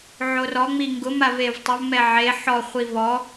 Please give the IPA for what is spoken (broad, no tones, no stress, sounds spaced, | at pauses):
ʕ o r ɔ ŋ͡m i ŋ ɡ ʊ m a v e v tˤ ʊ v m ɛ ʕ e ħ ɔ χʷ i v ɔ